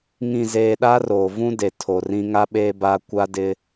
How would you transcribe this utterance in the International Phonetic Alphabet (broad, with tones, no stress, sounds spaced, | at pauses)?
ŋ ĩ˨ z eː˨ ɗ a˦ r oː˨ v ũ˦ d e˨ tʰ o˨ r ĩ˦ ŋ a˦ ɓ eː˦ b a˦ kʷ a˦ d ɪ˦